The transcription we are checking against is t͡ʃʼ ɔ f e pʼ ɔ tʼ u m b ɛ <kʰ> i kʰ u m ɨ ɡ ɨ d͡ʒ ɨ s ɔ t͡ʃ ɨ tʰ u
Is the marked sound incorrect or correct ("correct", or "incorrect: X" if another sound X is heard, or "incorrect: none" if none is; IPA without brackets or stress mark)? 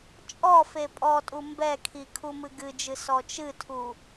correct